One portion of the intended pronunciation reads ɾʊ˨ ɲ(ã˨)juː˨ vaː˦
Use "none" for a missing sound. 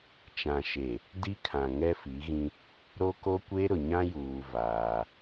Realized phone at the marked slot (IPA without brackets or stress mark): ã˦